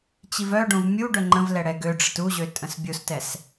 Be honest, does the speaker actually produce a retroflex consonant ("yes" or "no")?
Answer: yes